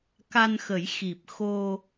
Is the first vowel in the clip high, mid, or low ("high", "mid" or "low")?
low